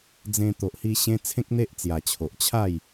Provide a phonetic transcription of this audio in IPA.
d͡zẽ˧ t̪o˨ʔhi˧ɕẽ˧ t͡sʰẽ˦k̚n̪e˦ʔt͡sja˨˩t͡ɕʰo˨ʔ t͡ɕʰa˥˧j

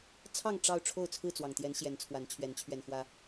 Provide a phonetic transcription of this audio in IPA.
t͡sʰɑ˥˨ŋ ʈ͡ʂɑ˥˨ʊ̯ ʈ͡ʂʰo˥˨ʊ̯t͡sʰɹ̩˥˨t͡swɑ˨˩ŋt̪jɛ˨˦n ɕjɛ˨˦nt͡sʰwa˨˦nt͡ɕʰɥɛ˨˦n t͡ɕʰɥɛ˨˩nxwä˨˦

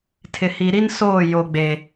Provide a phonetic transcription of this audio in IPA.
tʰɪ˨hi˨ɾi˦nsoː˦˨ jo˨ɡ͡be˨

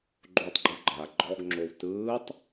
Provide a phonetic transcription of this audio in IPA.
ɡ͡ǃotˤɡ͡ǃu ɡ͡ǃa ɡ͡ǃɔɡŋ͡ǁow tɯːtˤ

